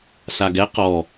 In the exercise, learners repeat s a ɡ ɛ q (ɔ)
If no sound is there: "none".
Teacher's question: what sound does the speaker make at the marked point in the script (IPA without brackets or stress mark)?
ɔ